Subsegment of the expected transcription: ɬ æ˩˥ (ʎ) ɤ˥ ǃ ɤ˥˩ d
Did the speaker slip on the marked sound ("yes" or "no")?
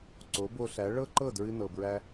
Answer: yes